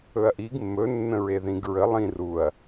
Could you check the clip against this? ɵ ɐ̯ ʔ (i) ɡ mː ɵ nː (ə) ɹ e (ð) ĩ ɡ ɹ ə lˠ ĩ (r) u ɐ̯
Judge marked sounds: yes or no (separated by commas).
yes, no, yes, yes